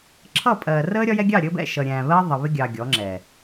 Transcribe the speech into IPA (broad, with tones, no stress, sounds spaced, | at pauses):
ǁʰ ʌ˦˨ pʼ ɜː˨ r əː˦ ɾʲ ɒ˦ j ɛ˦ ɡʲ ɑ˦˨ ɾʲ əː˦ b ɛ̰˦˨ ʃ ʌ˨ ɾʲ æ̃ː˨ β ɜ˦ ðˤ ə˨ β ɪ˦ ɡʲ ɑ˨ ɡʲ ɔ˨˦ ŋ͡ǁ ɛ˨